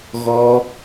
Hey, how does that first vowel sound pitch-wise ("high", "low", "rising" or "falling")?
high